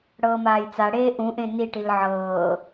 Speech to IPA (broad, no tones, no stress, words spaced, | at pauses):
ɽɤːmaːjt͡saɽeː ʔũʔẽ niʈil ʕɤː